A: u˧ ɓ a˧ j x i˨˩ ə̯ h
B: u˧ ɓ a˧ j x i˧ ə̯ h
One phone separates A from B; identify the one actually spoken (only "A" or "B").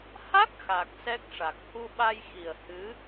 A